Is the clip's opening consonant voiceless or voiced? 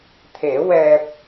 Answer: voiceless